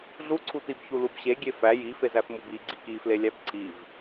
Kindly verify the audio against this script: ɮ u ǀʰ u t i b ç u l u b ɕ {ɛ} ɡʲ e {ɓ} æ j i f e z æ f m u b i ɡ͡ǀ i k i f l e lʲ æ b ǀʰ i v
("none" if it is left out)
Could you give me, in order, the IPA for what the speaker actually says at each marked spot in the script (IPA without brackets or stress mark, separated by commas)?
e, f